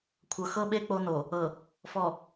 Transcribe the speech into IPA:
kʷʰ ɤ˨ x ɤ˦ ɓ e˦ k͡p o˦ n o˨ | ɤ˨ | f ɔ˨

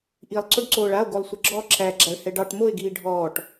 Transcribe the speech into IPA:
ʔ i lˠ ǀ o ɖ ǀ oː ɭ a o̯ ɡ o lˠ sʷ ə ɡ͡ǁ ɔ ǁ æ ɡ͡ǁ a ɭ h ɛ ɖ ɑ ʈ m o e̯ ɡ iː ɖʱ ɔː ʈ

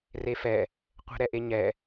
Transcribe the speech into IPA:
r e f ɛ | qʷ ɛ̤ ɾ ɛ ʔ e ɲ ɛ

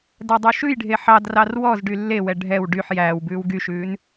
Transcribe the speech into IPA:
d æ dˤ y ʃ ʉ j ɖʱ e ħ ɑ d r ɑ r w ɔ z ɖ y lː e w ɛ ɖʱ ɛ w ɖ y ħ j æː w b ʉː w ɡ y ʃ ʉː n

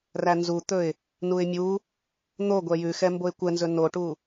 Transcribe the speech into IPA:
r æ n z u t̪ ɵ ɪ̯ | n u ɪ̯ mʲ u | n̪ o ɡʷ ɛ j ʉ x ɛ m b o ɪ̯ kʷ ɛ n z ɵ n o ʈ u

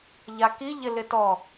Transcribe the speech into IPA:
ʎ a k i ʎ ɪ l ɪ t ɔ

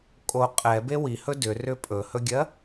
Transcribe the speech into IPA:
kʼ o qʼ ɛ b e w i h ɵ d ʏ r ʏ pʼ ɵ h ɵ ɡʲ ɜ

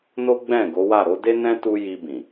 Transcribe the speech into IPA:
n o˦ ɡ͡b ɛ̃˦˨ ɡ o˨˦ w a˦˨ ɾ o˨˦ d e˦ n ɛ̃˦ t u˧ j i˧ b ĩ˨

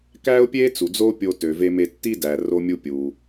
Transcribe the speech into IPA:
k æ˥ ʊ̯ pʲ e˥ t͡s u˩ d͡z o˥ pʲ o˧ t ø˩ v e˧ m e˧ tː i˥ d æ˩ r o˧ mʲ u˧ pʲ u˩

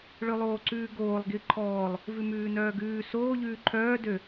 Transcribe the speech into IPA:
ɭ ø lˠ oː ǀ ʉː ɡ oː lˠ ɡ i ǃʰ ɔː lˠ | v ʉ m ʉː n œː ɡ ʉː s oː ʎ ʉː ǃʰ œː d ø

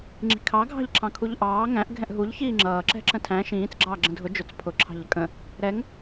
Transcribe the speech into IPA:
ŋ͡ǁ i̤ kʰ ɑ ɡʱ ɑ̤ ʎ ǁʰ ɑ̃ kʰ u ʎ ʔ ɑː ŋ æ̃ ʔ ɡʱ ɛ̃ ʔ ɦ u ʎ ç iː ŋ͡ǁ ʌː ǁ ɛ̤ ǁ ə̃ tʰ æ̃ ʃ ĩː t͡s ɡ͡ǁ ɑː ɡ͡ǁ ə̃ dʱ ʊ d͡ʒ ʊ t͡s pʰ ʊ ǁʰ ɑ̤ ʎ ə kʼ ə̃ | ɾ ɛ ŋ

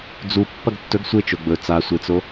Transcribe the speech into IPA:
d͡z u pː ɐ ɡ tː ɵ ɡ sʷ e t͡ʃ o ɡ͡b ɵ t͡s a sʷ e t͡s o

